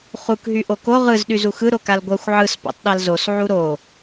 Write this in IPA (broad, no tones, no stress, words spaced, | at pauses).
χuk ɦyʔoko ʁɯz ɗyzuxɯ ɾokalɡʷɜxʷ ʕɯs po̰tˤɗalzos ʕuɾo